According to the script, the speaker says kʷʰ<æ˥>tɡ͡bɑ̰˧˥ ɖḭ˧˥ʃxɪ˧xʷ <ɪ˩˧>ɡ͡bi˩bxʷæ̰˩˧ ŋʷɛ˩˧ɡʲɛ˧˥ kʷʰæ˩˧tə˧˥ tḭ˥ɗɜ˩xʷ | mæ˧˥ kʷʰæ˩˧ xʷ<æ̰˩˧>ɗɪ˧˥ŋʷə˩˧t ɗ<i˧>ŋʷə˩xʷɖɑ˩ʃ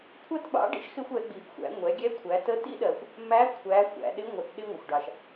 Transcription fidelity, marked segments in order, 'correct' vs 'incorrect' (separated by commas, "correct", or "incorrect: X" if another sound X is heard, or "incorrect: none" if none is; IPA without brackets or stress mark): correct, incorrect: ɛ˩˧, correct, incorrect: ɪ˧